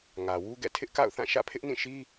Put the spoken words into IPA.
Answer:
ŋ ä˨ w u˦ ɡ ɛ̰˦˨ tʰ ɪ˦ ʔ k a̰˦˨ ʊ̯ θ ã˦˨ ʃ ä̰˦˨ pʰ ɪ˦ ʔ n ĩ˦˨ ʃ i˦

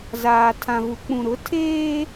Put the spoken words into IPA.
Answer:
z aː˨ tʰ ã˨ v u˨ k͡p ũ˨ ɾ ʊ˨˦ tʰ eː˦

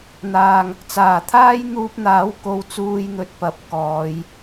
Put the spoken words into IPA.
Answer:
n̪ aː˧ ŋ | t͡s aː˨˩ t̪ʰ aː˥ j n̪ uː˧ p̚ n̪ aː˨˥ w k o˨˥ w t͡s uː˨ j n̪ ɵ˨ t̚ p ɐ˨ p̚ k ɔː˨˧ j

